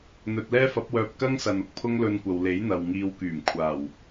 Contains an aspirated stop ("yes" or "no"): yes